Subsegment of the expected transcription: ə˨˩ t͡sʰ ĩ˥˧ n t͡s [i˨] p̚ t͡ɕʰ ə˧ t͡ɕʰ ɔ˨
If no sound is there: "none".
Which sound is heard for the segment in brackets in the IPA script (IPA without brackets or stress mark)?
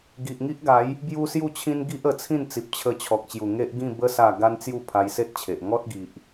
i˨